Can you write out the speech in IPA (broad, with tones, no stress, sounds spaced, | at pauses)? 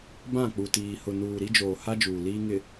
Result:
b ã˦˨ k͡p u˨ t iː˨ h ʊ˨ n uː˨ ɾ i˦ d͡ʒ oː˨ h a˦ d͡ʒ uː˨ l iː˦ ŋ ɪ˨